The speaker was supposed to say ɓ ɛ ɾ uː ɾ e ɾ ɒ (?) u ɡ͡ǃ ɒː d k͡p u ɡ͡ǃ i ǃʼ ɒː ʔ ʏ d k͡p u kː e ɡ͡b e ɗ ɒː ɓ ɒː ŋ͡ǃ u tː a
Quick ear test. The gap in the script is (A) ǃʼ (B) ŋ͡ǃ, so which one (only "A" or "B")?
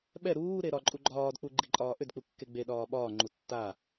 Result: A